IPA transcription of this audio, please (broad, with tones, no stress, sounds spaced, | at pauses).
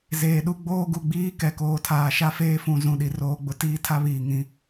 z eː˨ ɗ u˦ ɡ͡b oː˦ ɡ u˨ ɡ͡b iː˦ k ɛ˨ k oː˨ tʰ aː˨ ʃ a˦ f eː˦ f ũ˨ z ũ˨ ɗ i˨ r oː˦ ɡ͡b ʊ˦ t iː˦ tʰ a˦ β iː˨ ŋ ĩ˨˦